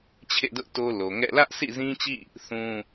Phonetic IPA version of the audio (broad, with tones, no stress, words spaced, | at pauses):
t͡ɕʰḛ˦˨dʊ˦ʔ to˦lo˨ ŋɛ̰˦˨ lä˦ʔsʰḭ˦˨zĩ˦t͡ɕḭ˦˨ | θũ˦